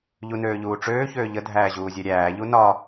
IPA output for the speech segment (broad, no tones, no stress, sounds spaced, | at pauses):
ʎ u n øː ʎ uː ʈ͡ʂ øː ç øː ʎ ə dʱ æː ʑ uː zʲ ɛ ɾʲ æː ʎ u n ɒ